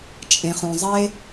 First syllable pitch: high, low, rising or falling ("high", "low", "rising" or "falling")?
low